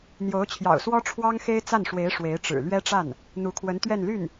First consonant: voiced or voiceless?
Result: voiced